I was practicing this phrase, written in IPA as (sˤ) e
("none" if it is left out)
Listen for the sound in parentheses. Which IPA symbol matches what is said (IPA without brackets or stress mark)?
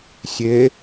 sʲ